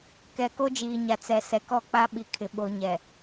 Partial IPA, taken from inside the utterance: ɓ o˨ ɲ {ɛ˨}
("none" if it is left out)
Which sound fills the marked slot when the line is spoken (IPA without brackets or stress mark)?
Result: ɛ˨